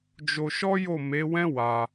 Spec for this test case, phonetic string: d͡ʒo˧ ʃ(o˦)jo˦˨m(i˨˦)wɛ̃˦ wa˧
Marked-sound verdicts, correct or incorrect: incorrect, incorrect

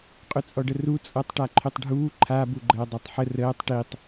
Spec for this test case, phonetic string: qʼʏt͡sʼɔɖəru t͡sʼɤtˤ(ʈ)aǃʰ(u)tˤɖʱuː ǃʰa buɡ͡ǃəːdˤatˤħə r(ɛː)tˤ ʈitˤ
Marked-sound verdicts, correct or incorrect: correct, incorrect, incorrect

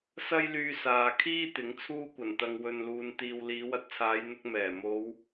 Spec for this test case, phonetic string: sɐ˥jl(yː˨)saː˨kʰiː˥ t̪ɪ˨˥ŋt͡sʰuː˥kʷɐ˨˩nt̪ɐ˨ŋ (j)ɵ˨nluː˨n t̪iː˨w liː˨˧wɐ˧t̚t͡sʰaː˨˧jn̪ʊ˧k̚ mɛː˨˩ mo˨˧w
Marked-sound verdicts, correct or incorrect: incorrect, incorrect

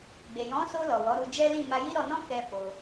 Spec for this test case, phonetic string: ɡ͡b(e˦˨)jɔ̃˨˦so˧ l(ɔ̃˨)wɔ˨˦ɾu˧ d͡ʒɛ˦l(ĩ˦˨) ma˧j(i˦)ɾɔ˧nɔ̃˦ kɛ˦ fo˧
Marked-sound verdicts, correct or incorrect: incorrect, incorrect, correct, correct

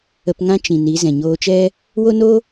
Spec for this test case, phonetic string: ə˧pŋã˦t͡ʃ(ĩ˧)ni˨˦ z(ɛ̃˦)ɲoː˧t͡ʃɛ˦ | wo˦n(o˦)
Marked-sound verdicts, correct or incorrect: incorrect, incorrect, correct

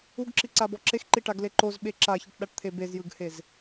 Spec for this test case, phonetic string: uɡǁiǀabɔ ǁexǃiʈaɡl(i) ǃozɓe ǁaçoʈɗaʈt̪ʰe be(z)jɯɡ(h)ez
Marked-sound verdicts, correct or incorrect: incorrect, correct, correct

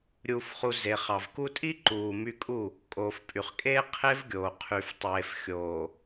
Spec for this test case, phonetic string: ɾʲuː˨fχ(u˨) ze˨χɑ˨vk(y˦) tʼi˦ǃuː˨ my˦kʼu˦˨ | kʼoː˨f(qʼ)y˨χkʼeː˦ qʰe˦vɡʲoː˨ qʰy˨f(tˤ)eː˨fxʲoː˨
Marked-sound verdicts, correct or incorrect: correct, incorrect, incorrect, correct

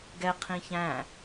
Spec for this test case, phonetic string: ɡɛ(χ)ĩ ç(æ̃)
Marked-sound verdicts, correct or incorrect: incorrect, correct

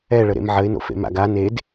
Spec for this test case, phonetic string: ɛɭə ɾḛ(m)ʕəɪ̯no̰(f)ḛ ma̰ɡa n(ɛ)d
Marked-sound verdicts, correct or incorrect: correct, correct, incorrect

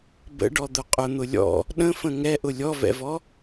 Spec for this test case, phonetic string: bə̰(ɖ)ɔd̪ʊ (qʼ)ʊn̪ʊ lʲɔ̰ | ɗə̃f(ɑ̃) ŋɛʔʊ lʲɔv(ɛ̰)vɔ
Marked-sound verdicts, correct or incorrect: correct, correct, incorrect, correct

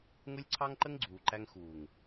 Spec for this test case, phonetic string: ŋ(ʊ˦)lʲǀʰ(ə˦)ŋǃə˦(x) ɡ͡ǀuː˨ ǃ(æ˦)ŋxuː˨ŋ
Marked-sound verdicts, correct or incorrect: correct, incorrect, incorrect, correct

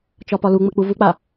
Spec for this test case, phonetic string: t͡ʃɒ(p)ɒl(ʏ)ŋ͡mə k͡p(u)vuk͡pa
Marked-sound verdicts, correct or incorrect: correct, incorrect, correct

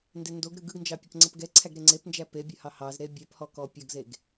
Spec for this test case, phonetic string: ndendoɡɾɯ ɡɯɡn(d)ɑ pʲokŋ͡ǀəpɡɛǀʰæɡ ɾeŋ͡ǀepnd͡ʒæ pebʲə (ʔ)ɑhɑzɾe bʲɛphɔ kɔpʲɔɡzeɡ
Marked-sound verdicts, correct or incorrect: incorrect, incorrect

